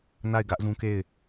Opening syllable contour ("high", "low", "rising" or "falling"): falling